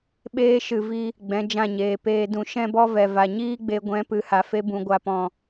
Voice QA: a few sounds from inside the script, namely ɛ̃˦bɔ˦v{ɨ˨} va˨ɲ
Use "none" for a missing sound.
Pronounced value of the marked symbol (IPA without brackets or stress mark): ɛ˨